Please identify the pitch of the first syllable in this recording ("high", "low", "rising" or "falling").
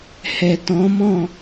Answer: low